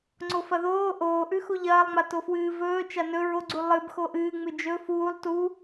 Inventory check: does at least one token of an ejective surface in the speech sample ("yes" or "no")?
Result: no